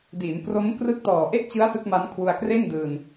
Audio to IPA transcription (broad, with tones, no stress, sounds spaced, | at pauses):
d iː˩˦ n k r o˦˥ m k r ɯ˦˥ k̚ t ɔː˨˩ ʔ e˥˩ ʔ t͡ɕ ɯ˦˥ a̯ s ɯ˦˥ k̚ m a˦˥ n kʰ w u˧ a̯ k r e˥˩ n d ɯː˧ n